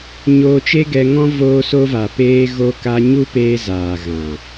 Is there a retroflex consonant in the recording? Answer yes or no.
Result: no